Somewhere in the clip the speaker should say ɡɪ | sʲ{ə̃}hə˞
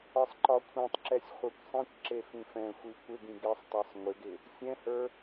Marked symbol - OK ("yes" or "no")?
no